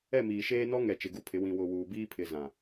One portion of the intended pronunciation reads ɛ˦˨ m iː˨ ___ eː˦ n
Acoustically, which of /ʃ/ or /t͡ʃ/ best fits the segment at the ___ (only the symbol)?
ʃ